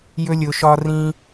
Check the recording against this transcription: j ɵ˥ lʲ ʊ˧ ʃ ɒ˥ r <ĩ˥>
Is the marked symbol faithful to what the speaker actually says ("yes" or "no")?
yes